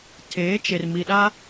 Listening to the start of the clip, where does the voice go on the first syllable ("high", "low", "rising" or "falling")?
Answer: rising